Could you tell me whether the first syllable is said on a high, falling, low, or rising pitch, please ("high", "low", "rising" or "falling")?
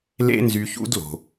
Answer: high